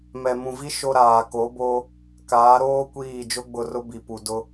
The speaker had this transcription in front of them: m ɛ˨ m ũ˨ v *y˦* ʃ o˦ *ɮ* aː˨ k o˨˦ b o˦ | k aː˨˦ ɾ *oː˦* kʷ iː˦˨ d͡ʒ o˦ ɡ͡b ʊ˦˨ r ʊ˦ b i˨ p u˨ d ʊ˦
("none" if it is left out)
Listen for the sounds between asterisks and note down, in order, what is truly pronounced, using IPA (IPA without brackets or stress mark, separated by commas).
i˦, ɾ, oː˦